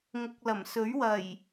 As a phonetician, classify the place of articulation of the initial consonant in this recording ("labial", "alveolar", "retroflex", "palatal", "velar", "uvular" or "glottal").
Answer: velar